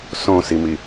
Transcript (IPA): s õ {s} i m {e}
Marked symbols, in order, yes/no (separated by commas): yes, no